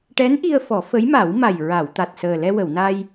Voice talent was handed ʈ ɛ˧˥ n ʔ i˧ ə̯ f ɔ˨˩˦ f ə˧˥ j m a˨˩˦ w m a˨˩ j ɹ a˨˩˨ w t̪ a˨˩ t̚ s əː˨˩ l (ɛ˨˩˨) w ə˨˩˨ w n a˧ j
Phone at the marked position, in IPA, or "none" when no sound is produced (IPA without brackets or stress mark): ɛ˧